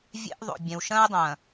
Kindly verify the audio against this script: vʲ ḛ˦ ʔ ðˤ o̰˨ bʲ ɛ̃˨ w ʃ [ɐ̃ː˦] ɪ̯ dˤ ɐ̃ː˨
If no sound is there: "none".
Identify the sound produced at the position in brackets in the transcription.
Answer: ɐ̃ː˦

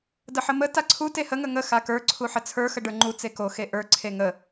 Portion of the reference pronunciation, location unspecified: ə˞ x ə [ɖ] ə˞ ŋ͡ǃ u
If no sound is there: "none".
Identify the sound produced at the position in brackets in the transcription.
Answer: ɖ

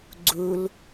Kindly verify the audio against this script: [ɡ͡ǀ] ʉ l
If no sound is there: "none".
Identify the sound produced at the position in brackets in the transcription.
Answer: ɡ͡ǀ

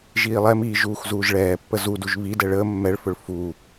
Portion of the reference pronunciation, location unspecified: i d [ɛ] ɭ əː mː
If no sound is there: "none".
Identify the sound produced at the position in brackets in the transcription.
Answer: ɛ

